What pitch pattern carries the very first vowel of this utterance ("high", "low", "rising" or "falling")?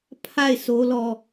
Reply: falling